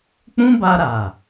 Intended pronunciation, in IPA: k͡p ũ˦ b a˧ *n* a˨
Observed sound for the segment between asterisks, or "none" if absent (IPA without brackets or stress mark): ɾ